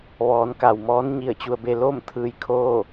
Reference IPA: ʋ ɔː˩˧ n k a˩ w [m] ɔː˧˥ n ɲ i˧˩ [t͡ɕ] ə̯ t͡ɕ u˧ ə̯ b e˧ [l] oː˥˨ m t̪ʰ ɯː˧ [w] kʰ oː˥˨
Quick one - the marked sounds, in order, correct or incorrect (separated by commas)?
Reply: correct, incorrect, correct, incorrect